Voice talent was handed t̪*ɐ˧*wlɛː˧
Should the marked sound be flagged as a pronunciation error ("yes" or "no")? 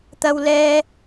no